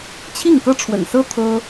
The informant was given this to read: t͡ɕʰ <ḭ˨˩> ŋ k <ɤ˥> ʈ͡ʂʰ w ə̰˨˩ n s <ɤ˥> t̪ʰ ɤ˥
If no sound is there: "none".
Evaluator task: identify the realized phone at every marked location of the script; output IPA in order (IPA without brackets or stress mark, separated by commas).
i˥˩, ɤ˥, ɤ˥